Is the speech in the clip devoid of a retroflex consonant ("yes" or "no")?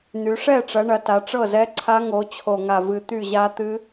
no